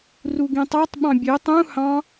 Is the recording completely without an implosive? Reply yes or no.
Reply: no